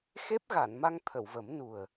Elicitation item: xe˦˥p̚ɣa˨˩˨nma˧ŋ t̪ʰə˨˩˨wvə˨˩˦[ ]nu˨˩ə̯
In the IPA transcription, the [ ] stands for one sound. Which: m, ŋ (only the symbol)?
m